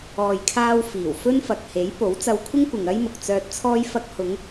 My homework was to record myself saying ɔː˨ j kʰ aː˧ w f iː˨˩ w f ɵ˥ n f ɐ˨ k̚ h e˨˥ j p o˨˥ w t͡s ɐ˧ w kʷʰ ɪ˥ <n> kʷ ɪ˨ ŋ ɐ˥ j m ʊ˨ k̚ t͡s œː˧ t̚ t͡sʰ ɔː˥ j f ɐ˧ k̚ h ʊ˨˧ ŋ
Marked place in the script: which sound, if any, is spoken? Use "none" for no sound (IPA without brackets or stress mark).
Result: ŋ